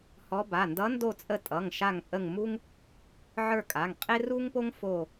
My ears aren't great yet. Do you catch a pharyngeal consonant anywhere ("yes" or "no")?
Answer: yes